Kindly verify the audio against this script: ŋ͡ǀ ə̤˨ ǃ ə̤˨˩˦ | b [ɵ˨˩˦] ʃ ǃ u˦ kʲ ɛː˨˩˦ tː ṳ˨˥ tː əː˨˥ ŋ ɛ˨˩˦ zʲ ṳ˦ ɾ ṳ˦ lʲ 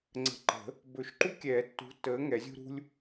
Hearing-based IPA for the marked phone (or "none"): ɵ˨˩˦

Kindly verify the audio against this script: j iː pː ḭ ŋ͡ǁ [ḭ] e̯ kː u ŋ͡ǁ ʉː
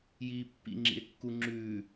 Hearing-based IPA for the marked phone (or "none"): ḭ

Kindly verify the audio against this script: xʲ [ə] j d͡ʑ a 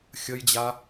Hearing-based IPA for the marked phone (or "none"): ə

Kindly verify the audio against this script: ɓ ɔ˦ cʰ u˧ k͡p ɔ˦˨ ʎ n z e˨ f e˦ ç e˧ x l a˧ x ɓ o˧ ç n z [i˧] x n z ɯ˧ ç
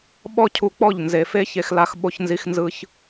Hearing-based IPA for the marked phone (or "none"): i˧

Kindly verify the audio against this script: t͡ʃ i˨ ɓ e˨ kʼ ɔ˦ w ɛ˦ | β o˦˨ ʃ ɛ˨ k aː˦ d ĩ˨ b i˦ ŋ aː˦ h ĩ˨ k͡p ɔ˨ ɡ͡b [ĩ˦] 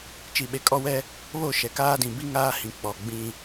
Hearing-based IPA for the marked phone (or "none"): ĩ˦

